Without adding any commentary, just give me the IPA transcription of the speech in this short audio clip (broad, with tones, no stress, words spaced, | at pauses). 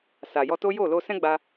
sa˨jɔ˧to˦ jo˦˨lo˧sɛ̃˦ ɡ͡ba˧